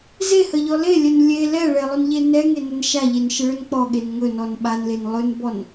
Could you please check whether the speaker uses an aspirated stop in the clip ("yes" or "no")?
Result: no